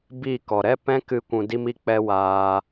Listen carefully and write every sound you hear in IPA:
b i˦˨ k ɔ˨ ɾ ɛ˦ p ɛ̃˦ k ɨ˧ kʷ ũ˧ d i˦ m i˦ k͡p ɛ˦ w aː˧

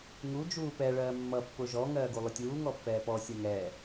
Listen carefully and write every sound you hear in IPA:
ŋ u d͡ʒ uː p ɛ ɭ ɜː mː ʌ pː ʊ ʒ ɔ ŋ ɜː ɡ u lˠ ʊ tʲ uː ŋ ɔ pː ɛː p ɔ sʲ ɜ ŋ ɛː

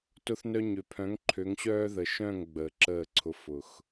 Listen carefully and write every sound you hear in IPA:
t ʊ˧ θ n œ˧ ɲ ø˨ pʰ œ̃˨˦ ŋ ǃʰ ø˨˦ ŋ ɕ œː˦ ð ə˨ ʃ œ̃˦˨ ŋ ɡ͡b əː˨ ǁ əː˦˨ ǀʰ ʊ˧ f ʊ˨ x

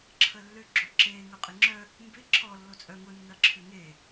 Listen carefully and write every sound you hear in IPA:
ǁʰ ə lː ʏ ɡ͡ǁ o ǁ eː ŋ œ qʼ ɪ ŋ͡ǁ œ | m b ɪ ǁʰ ɔ lː o t͡sʼ œ ŋ ʊ nː ɐ ǁʰ ʏ ŋ e

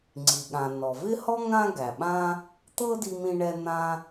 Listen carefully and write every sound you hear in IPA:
ŋ͡ǀ i˩ ɠ ã˩ n ɔ˩ v ɪ˥ h ɔ˥ ŋ ã˥ ɡ æ˩ ɓ ã˥ | t̪ ɤ˥ d i˧ m ĩ˧ ɳ ɛ˧ n̪ ã˧

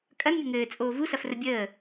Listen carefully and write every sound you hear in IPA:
kʼ ɐ n mʲ ə ŋ ɘː t͡sʼ oː v u s ɐ f r ə bʲ əː

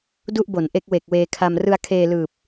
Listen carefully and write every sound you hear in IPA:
d u˥˩ ʔ b o˩˦ n ʔ e˦˥ k̚ w e˨˩ k̚ w eː˧ kʰ a˧ m r ɯ˧ a̯ kʰ eː˧ l ɯː˨˩ p̚

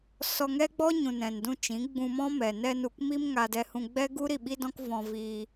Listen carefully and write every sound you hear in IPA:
s ɔ˧ ŋ ɛ˦ ɡ͡b ɔ˦ ɲ ũ˨ n ɛ̃˨ n d ũ˧ t͡ʃ ĩ˨˦ ɡ͡b ũ˧ m ɔ̃˦ m ɛ˨ n ɛ˧ n u˨ k m i˦ m ŋ a˧ d ɛ˧ h ũ˧ ɡ͡b ɛ˦ ɡ u˦ ɾ i˦˨ ɓ i˦ d ɔ̃˦ k v ɔ̃˧ v iː˧

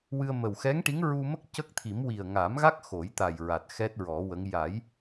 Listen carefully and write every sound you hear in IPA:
w ɨ˧ ə̯ m ə˨˩ w x ɛ˧˥ ŋ ʈ i˧˥ ŋ ɹ u˧ m ə˦˥ k̚ c ə˦˥ k̚ t̪ʰ i˨˩˦ m w i˨˩ ə̯ ŋ a˨˩˦ m ɣ a˦˥ k̚ x o˨˩˦ j t̪ a˨˩ j ɹ a˨˩ t̚ x ɛ˦˥ t̚ ɹ ɔ˨˩˦ w ə˧˥ ŋ j a˨˩˦ j

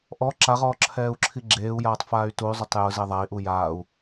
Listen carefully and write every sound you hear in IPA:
ʔ ɔ ǁ a ʁ ɔː ǁʰ ɛː u̯ ǁʰ i ɡ͡ǁ eː u̯ j aː tˤ f aː y̯ t u y̯ zˤ ʊ tˤ j ʊ z e ðˤ a i̯ ʔ u j aː u̯

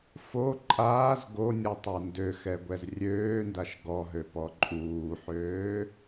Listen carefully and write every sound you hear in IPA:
f o ǃʼ aː z ɡ o nʲ ɔ tˤ a n d ø x ɛ ɡʷ ɛ z rʲ øː n d a ʃ ɡ ɔ ɦ ø p ɔ ǃʼ uː ħ øː

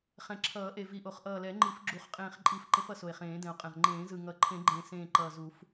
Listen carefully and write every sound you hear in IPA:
χ ɛ̃˨˩ ǁʰ ʌː˨˩˦ ʔ e˨˩ v i˨˩ ʔ o˨˩˦ χ ʔ ʌː˨˩ l ɛ˨˩˦ ŋ͡ǃ i˨˩˦ f ɡ͡ǁ u˨˩˦ χ qʼ ẽː˨˩ χ ǃʼ i˨˩˦ f ǃ ẽ˨˩˦ f ʌ˨˩ s o˨˩ e̯ χ ẽː˨˩˦ d ɛ̃˨˩ o̯ qʼ ɛ̃˨˩ ʁ ŋ͡ǃ ẽː˨˩˦ z ɯ˨˩ ŋ ʌ˨˩ ǃʰ ẽ˨˩˦ ɡ͡ǃ ẽ˨˩ s ẽː˨˩ ǃ ʌː˨˩ z u˨˩˦ f

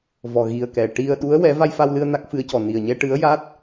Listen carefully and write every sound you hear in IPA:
v ɔ˨˩ ɣ i˨˩ ə̯ k ɛ˨˩ ʈ i˧ ə̯ ɗ u˧˥ ə̯ w ɛ˧˥ v a˧ j f a˧ w l ɨ˧ ə̯ n a˦˥ k̚ f ɨ˧˥ ə̯ c ɔ˨˩ n i˨˩ ə̯ ɲ ɛ˧ ʈ ɨ˧˥ ə̯ j a˦˥ t̚

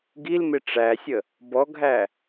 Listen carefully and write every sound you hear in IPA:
ɡ i l m ɪ ʈ͡ʂ æ sʲ ə | b ɔ ɡʱ æ

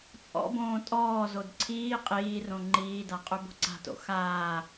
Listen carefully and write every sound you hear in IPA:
t͡sʼ ɔ̰ b õː tʼ ɔː z o d ǀʰ iː qʼ iː r õ ŋ͡ǃ iː d a qʼ ø b o̤ ǀ a̤ t o̰ x aː

